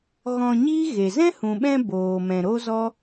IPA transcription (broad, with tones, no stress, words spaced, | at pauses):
ɣɔ̃˧ɲiː˦ɣe˨ zɛ̃˦hũ˨ɓɛ̃˧ boː˨mɛ̃˨ ɾo˦zɔ˦